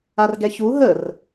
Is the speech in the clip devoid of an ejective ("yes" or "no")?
yes